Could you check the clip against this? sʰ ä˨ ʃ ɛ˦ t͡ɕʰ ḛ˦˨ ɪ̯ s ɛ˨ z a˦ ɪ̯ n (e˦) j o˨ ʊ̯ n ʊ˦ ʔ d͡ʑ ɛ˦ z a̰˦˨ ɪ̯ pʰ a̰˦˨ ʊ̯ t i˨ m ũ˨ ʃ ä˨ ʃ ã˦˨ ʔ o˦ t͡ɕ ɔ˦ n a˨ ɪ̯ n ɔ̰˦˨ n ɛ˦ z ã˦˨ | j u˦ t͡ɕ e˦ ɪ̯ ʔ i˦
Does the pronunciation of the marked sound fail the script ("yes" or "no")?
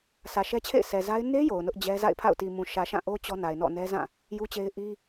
no